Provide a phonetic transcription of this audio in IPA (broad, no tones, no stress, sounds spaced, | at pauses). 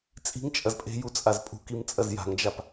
t͡sʼ i̤ ŋ t͡ʃʼ ɐ z pʼ e̤ j u t͡sʼ a z pʼ ṳ k i m t͡sʼ ɐ z j a̤ ŋ d͡ʒ a p